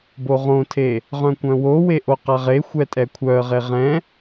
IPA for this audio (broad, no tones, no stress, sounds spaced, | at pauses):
b o ʁ õ tʰ e | ʁ œ̃ kʷ œ̃ w o w e ʔ o q a ʁ e xʷ ɛ tʼ ɛ kʷʰ œ ə̯ ʁ e ʁ ɛ̃